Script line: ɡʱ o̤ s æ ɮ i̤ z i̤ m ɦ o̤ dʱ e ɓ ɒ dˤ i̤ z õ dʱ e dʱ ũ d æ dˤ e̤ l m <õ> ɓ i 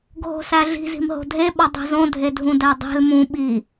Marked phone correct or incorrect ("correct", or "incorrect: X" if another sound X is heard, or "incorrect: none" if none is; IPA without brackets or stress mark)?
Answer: incorrect: ũ